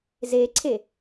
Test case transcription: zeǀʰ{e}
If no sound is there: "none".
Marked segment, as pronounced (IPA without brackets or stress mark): e